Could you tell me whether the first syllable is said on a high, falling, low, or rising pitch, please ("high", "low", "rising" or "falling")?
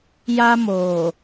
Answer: high